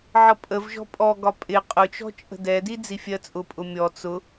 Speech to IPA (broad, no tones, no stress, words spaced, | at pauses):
ʕʌpʼəvʒɔ̤ pʼɔɡɒ pʼɪ qʼʊt͡ʃɔ̤ t͡ʃʼə̤dɛdi d͡zifʲɜt͡sʼʊpʼʊ mʲɔ t͡sʊ